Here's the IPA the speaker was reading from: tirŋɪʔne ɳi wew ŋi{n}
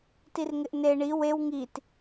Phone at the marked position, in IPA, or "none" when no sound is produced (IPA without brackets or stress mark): t